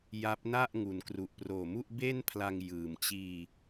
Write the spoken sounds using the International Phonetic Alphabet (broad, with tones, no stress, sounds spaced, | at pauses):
j a˦˥ p̚ n a˥˩ ʔ ŋ u˩˦ n k r u˨˩ ʔ p r oː˨˩ m u˥˩ ʔ b e˥˩ n pʰ l a˧ ŋ j ɯː˨˩ m t͡ɕ iː˧